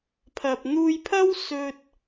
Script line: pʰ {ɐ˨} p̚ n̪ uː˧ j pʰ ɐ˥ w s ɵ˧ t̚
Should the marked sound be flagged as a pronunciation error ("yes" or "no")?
no